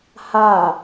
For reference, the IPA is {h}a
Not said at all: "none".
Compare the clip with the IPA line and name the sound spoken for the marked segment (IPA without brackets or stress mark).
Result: h